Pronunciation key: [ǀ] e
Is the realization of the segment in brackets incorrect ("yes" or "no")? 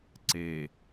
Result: no